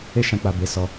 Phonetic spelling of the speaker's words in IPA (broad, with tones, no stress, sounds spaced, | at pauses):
e˦ ʃ ã˧ k͡p a˨ b e˨˦ s ɔ˧